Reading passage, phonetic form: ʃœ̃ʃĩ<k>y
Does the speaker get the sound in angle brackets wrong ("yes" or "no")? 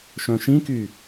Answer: no